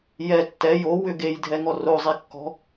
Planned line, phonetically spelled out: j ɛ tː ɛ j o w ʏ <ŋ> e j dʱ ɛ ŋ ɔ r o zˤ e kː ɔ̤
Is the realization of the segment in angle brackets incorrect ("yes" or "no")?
yes